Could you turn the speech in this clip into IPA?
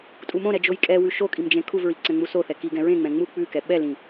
tʼ u m õ ɾ ɛ d͡ʒ o j kʼ ɛ w ʉ ʃ o kʼ i m d͡ʒ ẽ kʰ u v ɹ i ǀ ɛ̃ ŋ͡m u s o θ ɛ k i ɡ ɛ̃ ɹ ẽ ŋ͡m ɛ̃ ŋ͡m u k͡p ʉ k ɛ ɓ ɛ l ĩ

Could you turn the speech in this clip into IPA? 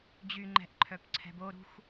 d͡ʑ y ŋ͡ǃ ɛ̤ ʔ ǃʰ œ p ǀʰ ɛ̤ b o ɾ ṳ x

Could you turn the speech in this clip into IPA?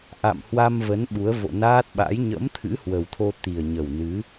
ʔ a̰˧˨ m h w a˧ m v ə˨˦ n ɓ u˨˦ ə̯ v o̰˧˨ n aː˦˥ t̚ ɓ a̰˧˥ j ɲ ə̰˧˥ m t̪ʰ ɨ̰˧˥ h w ə˨˩ w t̪ʰ o˧ t̪ i˨˩ ə̯ ɲ ə˨˩ w n ɨ˨˦

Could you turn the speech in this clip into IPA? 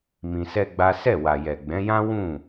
m ĩ˧ s ɛ˦ ɡ͡b a˦ s ɛ˦˨ w a˨ j ɛ˨ ɡ͡b ɛ̃˨˦ j ã˦ w ũ˦˨

